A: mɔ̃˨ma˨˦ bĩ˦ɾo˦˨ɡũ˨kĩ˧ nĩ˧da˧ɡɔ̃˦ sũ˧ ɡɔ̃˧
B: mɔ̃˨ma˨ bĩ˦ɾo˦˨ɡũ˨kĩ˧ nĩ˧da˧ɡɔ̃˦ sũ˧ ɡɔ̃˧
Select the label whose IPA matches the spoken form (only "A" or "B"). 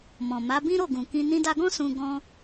A